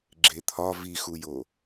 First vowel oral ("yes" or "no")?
yes